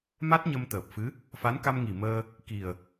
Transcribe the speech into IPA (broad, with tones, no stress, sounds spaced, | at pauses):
m a˦˥ t̚ ɲ ə˧ m t̪ əː˨˩ p̚ f ɨ˧˥ | f a˧˥ n k a˧ m ŋ i˨˩ m əː˧ | k i˨˩ ə̯